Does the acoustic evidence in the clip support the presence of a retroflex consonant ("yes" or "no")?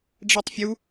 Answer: yes